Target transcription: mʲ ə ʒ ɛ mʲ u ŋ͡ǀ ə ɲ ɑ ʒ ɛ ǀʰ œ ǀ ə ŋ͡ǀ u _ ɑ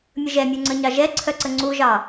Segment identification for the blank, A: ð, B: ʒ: B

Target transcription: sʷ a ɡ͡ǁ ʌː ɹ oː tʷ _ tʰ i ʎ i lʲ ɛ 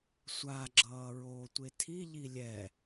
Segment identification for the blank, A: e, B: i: A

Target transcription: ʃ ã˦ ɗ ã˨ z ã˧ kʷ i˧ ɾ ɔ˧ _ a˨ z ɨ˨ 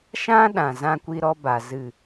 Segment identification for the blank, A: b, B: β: A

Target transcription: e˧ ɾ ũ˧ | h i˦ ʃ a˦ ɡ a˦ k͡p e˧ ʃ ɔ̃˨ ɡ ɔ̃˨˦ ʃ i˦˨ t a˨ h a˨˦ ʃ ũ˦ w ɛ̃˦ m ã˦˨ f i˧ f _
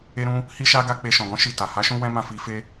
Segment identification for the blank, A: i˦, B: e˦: B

